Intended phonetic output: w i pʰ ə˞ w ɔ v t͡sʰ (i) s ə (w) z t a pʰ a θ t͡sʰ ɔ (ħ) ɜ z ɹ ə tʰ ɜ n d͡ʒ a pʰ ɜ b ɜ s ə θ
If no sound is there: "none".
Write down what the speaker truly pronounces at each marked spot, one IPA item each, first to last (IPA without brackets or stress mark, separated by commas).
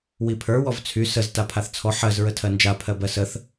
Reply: y, none, ħ